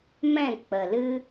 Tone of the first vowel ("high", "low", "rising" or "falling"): falling